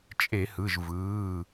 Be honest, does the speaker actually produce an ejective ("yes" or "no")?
yes